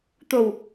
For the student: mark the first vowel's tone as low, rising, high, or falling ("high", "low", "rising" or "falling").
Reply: low